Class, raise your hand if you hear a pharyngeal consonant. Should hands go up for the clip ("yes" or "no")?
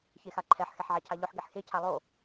yes